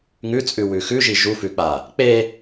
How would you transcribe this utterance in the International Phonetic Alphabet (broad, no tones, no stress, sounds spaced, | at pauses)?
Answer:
ŋ ʉ t͡sʼ ʉ w ʉ x ʉ ʒ i ʒ u f ʉ k͡p a | k͡p e